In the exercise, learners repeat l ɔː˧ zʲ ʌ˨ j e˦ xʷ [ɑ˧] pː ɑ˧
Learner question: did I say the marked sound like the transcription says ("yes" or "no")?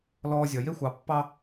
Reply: no